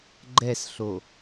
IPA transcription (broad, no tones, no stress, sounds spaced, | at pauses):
ɡ͡ǃ ɛ s ɬ o